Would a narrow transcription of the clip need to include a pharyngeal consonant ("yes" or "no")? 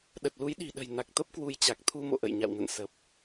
no